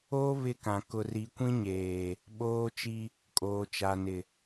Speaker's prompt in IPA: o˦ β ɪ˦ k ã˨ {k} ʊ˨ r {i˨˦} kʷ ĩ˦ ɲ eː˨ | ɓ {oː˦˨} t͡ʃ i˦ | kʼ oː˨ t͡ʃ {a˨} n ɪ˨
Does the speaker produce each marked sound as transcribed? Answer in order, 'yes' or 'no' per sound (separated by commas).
yes, yes, no, yes